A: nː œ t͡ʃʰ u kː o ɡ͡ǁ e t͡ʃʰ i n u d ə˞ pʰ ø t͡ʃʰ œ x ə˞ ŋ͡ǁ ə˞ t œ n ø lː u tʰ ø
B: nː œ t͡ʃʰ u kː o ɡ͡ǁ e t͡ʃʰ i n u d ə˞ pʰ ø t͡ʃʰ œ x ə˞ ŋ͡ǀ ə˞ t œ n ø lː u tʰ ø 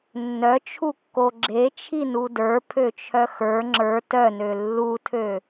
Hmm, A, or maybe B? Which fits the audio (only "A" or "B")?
A